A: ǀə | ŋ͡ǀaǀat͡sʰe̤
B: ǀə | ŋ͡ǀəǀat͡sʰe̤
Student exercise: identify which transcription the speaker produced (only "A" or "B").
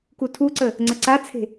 B